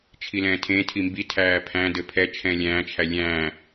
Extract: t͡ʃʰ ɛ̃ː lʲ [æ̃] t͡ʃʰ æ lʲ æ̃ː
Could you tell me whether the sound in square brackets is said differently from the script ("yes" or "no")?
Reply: yes